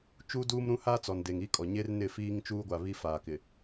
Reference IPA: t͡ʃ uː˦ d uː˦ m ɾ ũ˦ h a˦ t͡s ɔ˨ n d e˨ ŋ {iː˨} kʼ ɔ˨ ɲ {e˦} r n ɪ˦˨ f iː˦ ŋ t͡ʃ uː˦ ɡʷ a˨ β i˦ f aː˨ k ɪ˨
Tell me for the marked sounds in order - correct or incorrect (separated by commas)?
incorrect, correct